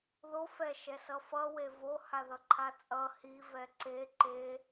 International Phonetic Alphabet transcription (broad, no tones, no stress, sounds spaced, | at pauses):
ð o f ɛ ʃ ɛ s ʌ f ʌ w e v o h a ð ʌ ǃʰ a t͡sʼ ʌ h i v ɛ ǀ e ǃ e